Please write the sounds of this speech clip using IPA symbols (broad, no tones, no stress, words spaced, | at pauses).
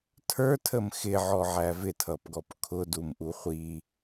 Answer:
tʰə˞tʰəm xɪʕɔʕæ vɪtʰʌpɡɔp kʰʊdumʔu χʷi